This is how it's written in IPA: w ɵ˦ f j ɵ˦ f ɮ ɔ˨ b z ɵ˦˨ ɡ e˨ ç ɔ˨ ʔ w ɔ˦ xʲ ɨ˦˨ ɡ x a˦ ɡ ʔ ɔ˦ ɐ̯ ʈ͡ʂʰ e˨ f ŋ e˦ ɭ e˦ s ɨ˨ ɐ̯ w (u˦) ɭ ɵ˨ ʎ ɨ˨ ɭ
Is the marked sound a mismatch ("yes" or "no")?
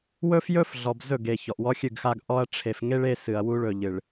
no